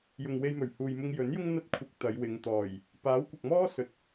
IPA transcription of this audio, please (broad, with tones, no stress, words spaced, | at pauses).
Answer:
jʊ˨ŋwe˧jmɵ˨˩ɥ huː˨jmʊ˧ŋ jɵ˨˥njʊ˥ŋ n̪ɐ˥t̚kʷʰɪ˧k̚ t̪ɐ˨˧jwɪ˨˧ŋ t̪ɔː˨˩j | paː˨˥wkʷɐ˨k̚mɔː˥ sɵ˨t̚